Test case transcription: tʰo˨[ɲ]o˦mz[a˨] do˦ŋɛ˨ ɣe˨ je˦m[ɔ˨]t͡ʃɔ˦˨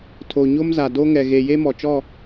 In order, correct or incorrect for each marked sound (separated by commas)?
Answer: correct, correct, correct